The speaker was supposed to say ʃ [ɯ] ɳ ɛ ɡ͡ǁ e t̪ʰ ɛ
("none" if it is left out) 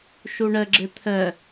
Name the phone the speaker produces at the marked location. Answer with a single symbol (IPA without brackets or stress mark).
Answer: u